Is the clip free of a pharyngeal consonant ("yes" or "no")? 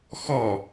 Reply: yes